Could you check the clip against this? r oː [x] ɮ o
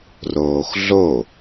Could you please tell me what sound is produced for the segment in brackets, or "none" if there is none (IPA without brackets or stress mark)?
x